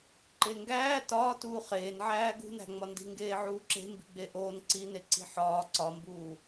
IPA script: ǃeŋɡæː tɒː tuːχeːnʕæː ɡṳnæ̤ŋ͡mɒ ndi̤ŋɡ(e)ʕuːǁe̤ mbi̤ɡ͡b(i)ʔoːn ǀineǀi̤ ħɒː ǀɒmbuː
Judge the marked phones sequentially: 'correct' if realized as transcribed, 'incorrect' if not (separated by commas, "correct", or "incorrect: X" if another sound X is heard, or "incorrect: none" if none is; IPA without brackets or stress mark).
incorrect: eː, incorrect: e